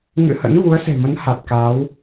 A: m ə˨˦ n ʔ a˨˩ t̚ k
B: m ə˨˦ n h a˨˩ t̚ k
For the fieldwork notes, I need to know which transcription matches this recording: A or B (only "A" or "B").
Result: B